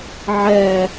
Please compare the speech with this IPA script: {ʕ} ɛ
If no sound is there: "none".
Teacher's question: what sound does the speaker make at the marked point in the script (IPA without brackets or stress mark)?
ʕ